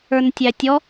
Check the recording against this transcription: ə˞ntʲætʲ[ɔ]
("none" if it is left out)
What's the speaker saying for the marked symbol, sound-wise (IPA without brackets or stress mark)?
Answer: ɔ